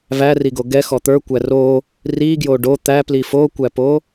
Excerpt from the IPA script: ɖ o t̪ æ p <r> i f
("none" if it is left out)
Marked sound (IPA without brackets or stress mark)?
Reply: l